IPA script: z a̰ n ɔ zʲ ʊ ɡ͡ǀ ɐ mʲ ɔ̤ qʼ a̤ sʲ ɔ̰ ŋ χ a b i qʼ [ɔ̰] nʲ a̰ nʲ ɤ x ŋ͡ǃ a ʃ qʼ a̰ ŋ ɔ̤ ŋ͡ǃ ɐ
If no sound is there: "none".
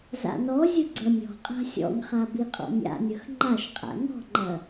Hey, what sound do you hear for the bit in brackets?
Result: ɔ̰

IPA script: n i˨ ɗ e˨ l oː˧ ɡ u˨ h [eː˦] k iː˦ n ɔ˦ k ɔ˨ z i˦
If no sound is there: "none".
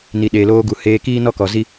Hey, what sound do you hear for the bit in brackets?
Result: eː˧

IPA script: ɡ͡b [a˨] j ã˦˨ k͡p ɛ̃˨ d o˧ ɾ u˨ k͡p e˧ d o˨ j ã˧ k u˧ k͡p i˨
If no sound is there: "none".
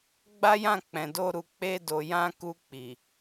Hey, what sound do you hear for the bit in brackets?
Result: a˦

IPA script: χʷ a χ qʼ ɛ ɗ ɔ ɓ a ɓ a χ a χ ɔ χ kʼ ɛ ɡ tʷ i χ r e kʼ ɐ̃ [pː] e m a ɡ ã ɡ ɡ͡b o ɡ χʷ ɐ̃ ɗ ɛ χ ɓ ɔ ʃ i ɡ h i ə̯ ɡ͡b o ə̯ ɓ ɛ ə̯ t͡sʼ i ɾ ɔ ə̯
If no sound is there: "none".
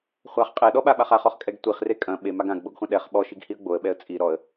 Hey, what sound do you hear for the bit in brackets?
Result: ɓ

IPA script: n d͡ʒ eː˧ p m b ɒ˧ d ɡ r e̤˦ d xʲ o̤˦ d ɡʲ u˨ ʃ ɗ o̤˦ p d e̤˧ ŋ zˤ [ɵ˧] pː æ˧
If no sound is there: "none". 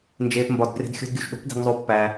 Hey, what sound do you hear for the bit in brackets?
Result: o˧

